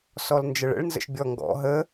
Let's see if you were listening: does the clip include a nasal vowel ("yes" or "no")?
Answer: no